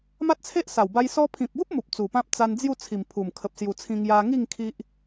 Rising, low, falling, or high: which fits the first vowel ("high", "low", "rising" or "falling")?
high